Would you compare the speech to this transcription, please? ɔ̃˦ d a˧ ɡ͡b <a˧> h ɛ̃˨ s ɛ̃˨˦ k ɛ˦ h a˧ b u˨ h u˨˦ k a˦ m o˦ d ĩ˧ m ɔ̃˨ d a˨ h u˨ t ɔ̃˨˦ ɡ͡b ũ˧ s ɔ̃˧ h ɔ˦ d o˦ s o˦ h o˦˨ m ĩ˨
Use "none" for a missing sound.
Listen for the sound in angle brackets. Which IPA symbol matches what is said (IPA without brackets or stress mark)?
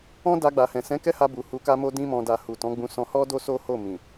a˨